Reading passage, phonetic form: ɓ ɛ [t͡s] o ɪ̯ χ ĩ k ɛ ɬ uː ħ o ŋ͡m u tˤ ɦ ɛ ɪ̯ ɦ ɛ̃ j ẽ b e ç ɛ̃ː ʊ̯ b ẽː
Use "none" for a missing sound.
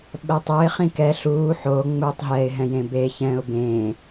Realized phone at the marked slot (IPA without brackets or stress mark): tˤ